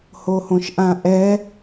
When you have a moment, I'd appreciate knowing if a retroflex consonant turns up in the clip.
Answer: no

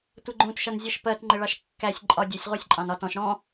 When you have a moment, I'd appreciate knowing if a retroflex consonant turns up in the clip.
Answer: yes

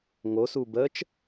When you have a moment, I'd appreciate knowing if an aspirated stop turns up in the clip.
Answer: no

